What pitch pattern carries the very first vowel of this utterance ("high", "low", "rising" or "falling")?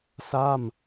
falling